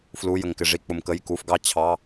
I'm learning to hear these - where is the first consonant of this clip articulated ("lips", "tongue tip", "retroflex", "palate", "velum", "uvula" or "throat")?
lips